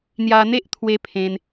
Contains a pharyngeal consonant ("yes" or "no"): no